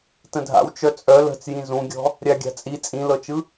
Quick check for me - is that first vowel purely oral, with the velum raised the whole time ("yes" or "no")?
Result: no